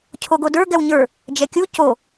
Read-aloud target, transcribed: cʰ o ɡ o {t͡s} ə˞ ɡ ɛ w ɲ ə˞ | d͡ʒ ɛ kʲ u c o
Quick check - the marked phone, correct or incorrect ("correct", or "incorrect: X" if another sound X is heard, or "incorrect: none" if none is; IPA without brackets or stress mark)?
incorrect: d